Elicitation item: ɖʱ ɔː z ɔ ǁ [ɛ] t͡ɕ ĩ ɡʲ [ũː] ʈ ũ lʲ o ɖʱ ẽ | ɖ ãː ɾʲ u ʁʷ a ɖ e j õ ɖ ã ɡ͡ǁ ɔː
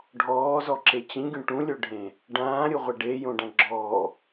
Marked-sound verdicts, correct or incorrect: incorrect, incorrect

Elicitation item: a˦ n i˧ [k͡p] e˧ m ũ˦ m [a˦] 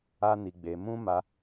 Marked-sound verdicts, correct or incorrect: incorrect, incorrect

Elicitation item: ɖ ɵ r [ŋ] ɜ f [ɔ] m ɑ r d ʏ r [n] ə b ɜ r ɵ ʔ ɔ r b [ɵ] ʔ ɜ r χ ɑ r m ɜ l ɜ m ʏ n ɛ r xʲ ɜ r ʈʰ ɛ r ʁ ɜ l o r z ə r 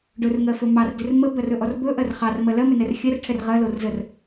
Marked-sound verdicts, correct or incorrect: correct, incorrect, incorrect, correct

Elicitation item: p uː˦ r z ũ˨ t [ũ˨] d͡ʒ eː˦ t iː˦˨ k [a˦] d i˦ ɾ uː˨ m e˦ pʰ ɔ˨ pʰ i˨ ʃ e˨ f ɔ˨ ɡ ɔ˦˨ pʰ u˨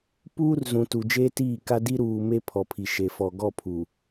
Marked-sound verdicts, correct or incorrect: incorrect, correct

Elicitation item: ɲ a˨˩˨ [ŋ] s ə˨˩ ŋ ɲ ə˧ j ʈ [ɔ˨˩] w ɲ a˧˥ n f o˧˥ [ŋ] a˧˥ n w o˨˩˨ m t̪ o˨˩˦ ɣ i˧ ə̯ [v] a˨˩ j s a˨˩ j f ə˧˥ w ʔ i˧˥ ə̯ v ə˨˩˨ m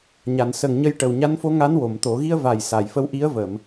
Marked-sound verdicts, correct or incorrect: incorrect, incorrect, correct, correct

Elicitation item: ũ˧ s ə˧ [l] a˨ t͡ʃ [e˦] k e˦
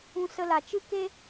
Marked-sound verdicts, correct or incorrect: correct, incorrect

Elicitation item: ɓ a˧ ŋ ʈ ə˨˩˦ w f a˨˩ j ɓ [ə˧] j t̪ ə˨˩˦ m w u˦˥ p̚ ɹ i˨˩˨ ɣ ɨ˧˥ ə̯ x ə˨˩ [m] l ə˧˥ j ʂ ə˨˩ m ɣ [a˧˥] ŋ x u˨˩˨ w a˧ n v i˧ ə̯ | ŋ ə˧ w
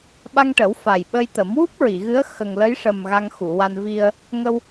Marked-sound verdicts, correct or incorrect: correct, incorrect, incorrect

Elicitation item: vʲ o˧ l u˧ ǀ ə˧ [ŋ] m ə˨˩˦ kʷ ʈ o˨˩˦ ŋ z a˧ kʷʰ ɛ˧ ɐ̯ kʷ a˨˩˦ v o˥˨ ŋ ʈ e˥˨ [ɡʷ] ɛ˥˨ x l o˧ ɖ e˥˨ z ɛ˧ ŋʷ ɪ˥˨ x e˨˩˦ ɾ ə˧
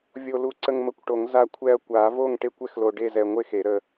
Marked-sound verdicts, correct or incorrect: correct, incorrect

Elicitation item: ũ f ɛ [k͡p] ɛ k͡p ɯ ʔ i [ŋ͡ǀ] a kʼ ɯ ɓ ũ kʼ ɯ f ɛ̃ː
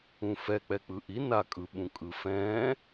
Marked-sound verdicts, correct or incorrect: correct, incorrect

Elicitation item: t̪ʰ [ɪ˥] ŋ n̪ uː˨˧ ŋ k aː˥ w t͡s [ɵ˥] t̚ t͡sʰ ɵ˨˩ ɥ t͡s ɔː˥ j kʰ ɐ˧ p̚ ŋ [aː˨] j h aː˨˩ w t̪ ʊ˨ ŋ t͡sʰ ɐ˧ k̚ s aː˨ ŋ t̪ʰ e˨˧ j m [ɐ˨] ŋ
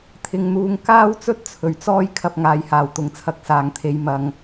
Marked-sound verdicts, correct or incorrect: incorrect, correct, correct, correct

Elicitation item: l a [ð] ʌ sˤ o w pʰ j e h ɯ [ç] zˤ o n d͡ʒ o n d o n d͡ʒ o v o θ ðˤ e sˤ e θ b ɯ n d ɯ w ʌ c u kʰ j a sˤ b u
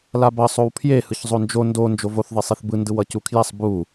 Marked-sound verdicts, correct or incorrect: incorrect, correct

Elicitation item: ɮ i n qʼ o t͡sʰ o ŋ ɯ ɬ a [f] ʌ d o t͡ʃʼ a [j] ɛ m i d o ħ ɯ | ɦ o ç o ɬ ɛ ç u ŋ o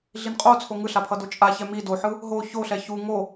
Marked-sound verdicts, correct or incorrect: incorrect, incorrect

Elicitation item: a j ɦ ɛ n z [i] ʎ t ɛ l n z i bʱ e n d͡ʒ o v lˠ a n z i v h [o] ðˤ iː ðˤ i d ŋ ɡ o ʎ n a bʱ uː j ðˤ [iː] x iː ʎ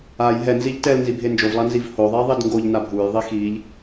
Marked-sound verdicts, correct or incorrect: correct, correct, incorrect

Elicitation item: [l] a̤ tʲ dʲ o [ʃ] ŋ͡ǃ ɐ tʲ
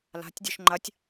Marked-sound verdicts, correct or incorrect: correct, correct

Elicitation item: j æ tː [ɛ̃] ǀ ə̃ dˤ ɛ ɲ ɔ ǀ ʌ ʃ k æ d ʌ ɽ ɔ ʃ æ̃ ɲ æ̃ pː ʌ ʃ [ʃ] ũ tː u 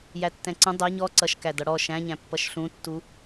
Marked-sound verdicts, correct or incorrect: correct, incorrect

